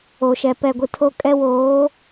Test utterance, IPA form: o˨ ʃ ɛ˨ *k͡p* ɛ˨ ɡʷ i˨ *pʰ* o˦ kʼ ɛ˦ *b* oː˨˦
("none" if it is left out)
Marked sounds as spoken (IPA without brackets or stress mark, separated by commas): p, tʰ, w